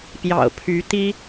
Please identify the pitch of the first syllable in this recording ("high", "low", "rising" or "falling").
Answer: low